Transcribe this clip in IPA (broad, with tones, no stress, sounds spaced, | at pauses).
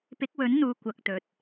p ɪ˨˥ k̚ w ɵ˨˥ n n̪ uː˨ kʷ ɐ˧ k̚ t̪ ɵ˨ t̚